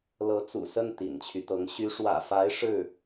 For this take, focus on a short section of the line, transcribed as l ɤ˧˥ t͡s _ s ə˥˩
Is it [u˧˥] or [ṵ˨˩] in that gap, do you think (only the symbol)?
ṵ˨˩